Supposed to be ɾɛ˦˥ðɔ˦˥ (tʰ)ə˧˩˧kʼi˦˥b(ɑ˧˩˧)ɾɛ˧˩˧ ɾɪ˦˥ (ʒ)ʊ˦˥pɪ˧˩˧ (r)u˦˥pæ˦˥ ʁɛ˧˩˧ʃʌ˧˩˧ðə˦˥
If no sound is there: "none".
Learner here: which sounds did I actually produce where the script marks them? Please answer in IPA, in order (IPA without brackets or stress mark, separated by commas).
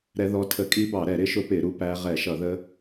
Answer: tʰ, ɑ˧˩˧, ʃ, ɾ